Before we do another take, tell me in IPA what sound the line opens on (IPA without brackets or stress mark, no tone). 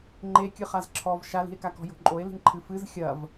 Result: ŋ͡ǃ